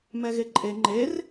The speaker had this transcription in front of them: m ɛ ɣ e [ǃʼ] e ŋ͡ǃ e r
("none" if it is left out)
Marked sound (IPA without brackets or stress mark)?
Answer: ǃʼ